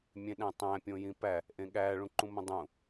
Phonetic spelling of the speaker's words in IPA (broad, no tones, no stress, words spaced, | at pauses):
mʲẽɗæ̃tˤæ̃ pʲõjĩpæ | ʔẽɠæ ɭũǃũmõdˤũ